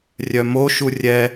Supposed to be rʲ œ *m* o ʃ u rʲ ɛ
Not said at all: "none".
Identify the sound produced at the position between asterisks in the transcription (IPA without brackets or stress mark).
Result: m